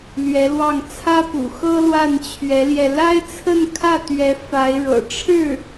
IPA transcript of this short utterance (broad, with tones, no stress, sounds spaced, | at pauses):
l ɥ ɛ˧˥ l w ɑ˥˩ ŋ t͡sʰ ä˥ p ṵ˨˩ x ɤ˥ l w a˥˩ n t͡ɕʰ ɥ ɛ˧˥ l j ɛ˧ l a˥ ɪ̯ t͡sʰ ə˥˧ n kʰ ä˥˩ t̪ ɥ ɛ˧˥ f a˧˥ ɪ̯ ɻ ɤ̰˨˩ ʈ͡ʂʰ ɻ̩˥˩